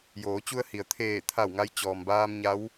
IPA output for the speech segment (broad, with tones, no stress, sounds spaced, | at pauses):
j oː˩˧ t͡ɕ u˧ ə̯ h i˩ ə̯ t̪ʰ eː˧˩ t̪ʰ a˧˩ w ŋ a˧ j t͡ɕ ɔː˩ m b aː˧ m ɲ a˧˥ w